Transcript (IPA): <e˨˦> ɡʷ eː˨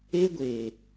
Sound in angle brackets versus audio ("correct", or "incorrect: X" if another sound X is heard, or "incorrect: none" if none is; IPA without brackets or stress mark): incorrect: e˦